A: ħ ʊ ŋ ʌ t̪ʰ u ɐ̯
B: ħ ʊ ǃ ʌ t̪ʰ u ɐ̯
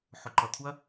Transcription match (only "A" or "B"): B